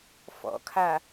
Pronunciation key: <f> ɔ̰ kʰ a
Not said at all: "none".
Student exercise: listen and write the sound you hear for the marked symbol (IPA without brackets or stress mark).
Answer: f